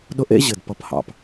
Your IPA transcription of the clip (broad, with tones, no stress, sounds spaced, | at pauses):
ɗ ʊ˦ ʔ ḛ˦ ʑ ɘ˨ d p ʌ˧ p h ɑ̰˧ p